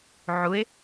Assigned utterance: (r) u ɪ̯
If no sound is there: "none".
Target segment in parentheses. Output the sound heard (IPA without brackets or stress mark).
ʕ